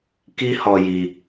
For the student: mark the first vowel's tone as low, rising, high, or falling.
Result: high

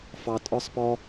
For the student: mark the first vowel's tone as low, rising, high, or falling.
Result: high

